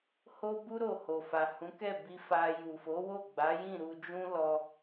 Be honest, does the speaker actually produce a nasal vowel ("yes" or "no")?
yes